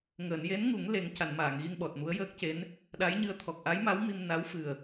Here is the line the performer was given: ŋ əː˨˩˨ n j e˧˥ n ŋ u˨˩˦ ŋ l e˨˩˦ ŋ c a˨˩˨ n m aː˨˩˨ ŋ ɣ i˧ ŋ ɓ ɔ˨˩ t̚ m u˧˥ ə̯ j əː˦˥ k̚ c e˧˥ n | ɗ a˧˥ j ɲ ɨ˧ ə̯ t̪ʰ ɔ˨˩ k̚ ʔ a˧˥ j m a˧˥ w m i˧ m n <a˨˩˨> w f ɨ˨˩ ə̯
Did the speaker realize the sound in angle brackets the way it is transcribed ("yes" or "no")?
no